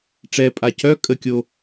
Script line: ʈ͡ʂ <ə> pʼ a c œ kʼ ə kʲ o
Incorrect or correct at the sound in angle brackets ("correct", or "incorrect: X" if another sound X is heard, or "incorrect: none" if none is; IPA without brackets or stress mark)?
incorrect: ɛ